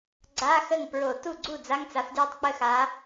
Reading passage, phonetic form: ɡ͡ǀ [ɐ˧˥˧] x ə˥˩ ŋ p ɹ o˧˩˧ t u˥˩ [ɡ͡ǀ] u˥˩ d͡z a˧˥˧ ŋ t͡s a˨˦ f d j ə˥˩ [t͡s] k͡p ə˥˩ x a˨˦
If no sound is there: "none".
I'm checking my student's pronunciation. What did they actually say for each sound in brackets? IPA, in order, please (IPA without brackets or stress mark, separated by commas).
a˧˥˧, ɡ͡ǀ, tˤ